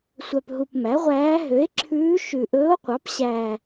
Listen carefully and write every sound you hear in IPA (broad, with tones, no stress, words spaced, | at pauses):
sʷœ˨˩pɦu˨˩p mæ˩˥ʁʷæː˧˥ ɦø˩˥e̯ ǁʰʉː˧˥ ʃʉ˨˩ʔɵː˧˥o̯qʷɑ˩˥p ɕæː˨˩